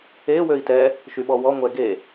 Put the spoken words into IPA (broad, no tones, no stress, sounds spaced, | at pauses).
e w ø i̯ t ɛ | ʃ y ɓ ɔ w ɔ ŋʷ ɛ ɡ e